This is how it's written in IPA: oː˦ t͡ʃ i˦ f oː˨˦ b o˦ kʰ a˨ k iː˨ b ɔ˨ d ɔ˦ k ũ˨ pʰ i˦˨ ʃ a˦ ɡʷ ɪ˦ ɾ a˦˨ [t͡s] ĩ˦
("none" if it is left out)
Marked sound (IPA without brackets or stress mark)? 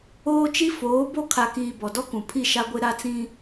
t͡s